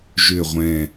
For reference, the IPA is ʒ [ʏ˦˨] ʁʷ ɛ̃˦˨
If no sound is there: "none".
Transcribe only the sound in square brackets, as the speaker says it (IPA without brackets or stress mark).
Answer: ʏ˦˨